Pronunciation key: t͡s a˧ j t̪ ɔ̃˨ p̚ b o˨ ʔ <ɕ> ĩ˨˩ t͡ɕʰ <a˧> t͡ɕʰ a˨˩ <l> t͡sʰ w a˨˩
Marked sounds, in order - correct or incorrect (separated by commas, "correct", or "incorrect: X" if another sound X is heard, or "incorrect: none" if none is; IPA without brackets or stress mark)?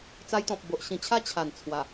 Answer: correct, incorrect: a˦, incorrect: n